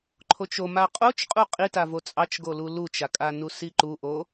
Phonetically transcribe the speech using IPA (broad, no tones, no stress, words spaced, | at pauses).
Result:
ǃʰot͡ʃo maqʼot͡ʃqʼu qʼitavo t͡sʼɑt͡ʃɡolu lut͡ʃakʼanu siǃuʔo